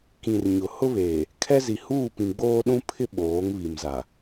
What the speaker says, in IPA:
k ĩ˨ r ɲ ʊ˨ h ʊ˦ β eː˨ | kʰ ɛ˦ z i˨ h uː˦˨ p ĩ˨ ɡ͡b oː˦ ɗ ũ˦ pʰ ɪ˦ ɓ oː˨˦ ŋ β i˨ m z a˨

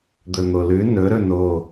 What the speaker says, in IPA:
d̪ ɵ n̪ o l ʉ n ɵ ɾ ɵ n o

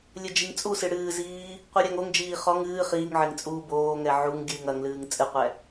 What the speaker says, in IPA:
lʲ ɘ d͡ʒ i ŋ t͡sʼ u s ɨ ɽ ɨː z iː | qʷ ɨ ɾʲ a ŋ o ŋ d͡ʒ iː χ ɔ ŋ ɨː χ iː ŋ ʕ e ŋ t͡sʼ uː b oː ŋ ɛ ʕ u ŋ ɡʲ ɨː ŋ ɐ ŋ l ɨː ŋ t͡sʼ ɨ qʷ ɛ

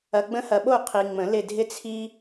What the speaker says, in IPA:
ɐ˨ ɡ͡b ə̃˧˥ h ɐ˨ ɓ o˦˨ qʰ i˨ ŋ͡m ə̃˨˩˦ l ɪ˦˨ dʱ ɪ˥ t͡sʰ i˥

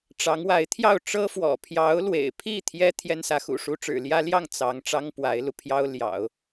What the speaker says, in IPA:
ʈ͡ʂ ɑ˧˥ ŋ w a˧˥ ɪ̯ t̪ʰ j ɑ˥˩ ʊ̯ ʈ͡ʂ ɤ˥ f w ɔ̰˨˩ pʰ j ɑ˧˥ ʊ̯ l w ḛ˨˩ ɪ̯ pʰ i˥˩ t̪ʰ j ɛ˥ t̪ʰ j ɛ˥ n s ä˧˥ x ṵ˨˩ ʂ u˥ ʈ͡ʂ ɻ̩˨˩ l j ä˥ l j ɑ˥˩ ŋ t͡s ɑ˧˥ ŋ ʈ͡ʂ ɑ˥ ŋ p w a˧˥ ɪ̯ l u˧ pʰ j ɑ˥ ʊ̯ l j ɑ̰˨˩˦ ʊ̯

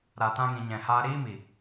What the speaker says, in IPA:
ɾ a˨ t ã˧ ŋ ĩ˨ ɲ ɛ̃˨ h aː˧ ɾ iː˦ m i˨

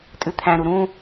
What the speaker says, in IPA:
tʼ ʉ t̪ʰ æ̃ ɾ u ɾ ũ

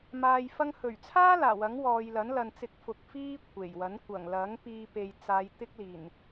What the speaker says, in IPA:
m aː˧ j f ɐ˧ ŋ h ɵ˨˩ ɥ t͡sʰ aː˥ l aː˨˩ w ɐ˨˥ ŋ w ɔː˨ j l ɐ˨˥ n l ɐ˨ n t͡s ɪ˧ k̚ f ʊ˨˥ k̚ f iː˥ kʷʰ e˨˩ j w ɐ˨˥ n kʷ ɐ˨˩ ŋ l ɐ˨˥ ŋ p iː˧ p e˨ j t͡s aː˨˧ j t̪ ɪ˥ k̚ l iː˨˩ n

